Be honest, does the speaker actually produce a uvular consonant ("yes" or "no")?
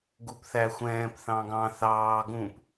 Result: no